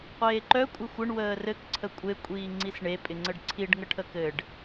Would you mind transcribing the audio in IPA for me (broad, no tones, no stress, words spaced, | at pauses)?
qʷeːǃœ kʷʼɘxʷɘɳ wəːrɘk ǀʰəkʷʼe kʷʼiːŋ͡ǀisɳe pʼɪŋ͡ǀəɖǀʰiɖ ŋəʈʰəkɘɖ